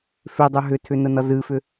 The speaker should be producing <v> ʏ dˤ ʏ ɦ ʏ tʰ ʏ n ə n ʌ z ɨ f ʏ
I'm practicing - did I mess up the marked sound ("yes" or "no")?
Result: yes